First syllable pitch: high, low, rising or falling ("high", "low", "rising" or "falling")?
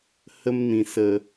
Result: high